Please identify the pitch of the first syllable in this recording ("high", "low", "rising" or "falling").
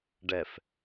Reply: low